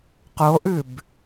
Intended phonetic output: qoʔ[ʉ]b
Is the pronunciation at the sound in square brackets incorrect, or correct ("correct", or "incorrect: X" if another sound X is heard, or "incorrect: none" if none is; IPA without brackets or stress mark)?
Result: correct